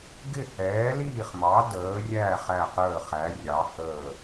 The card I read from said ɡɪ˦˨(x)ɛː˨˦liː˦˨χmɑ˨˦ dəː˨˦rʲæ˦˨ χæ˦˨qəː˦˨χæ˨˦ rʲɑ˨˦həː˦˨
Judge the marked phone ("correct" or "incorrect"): incorrect